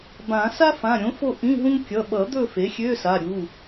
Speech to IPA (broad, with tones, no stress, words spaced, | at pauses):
bã˨˩˦ sa˥fã˩˧˩ɾʲõ˩˥fo˦˨ ʔĩ˧˥˧ɦũ˥ŋ kʲʌ˩˧˩ɓʌ˨˩˦d̪ɵ˦˨ fe˩˥xʲø˧˥˧ sa˩˧˩ɾʲu˩˧˩